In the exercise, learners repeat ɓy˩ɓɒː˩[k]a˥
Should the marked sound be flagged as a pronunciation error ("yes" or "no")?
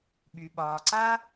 yes